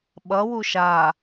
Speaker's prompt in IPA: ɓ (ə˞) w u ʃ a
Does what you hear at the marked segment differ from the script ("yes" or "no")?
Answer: yes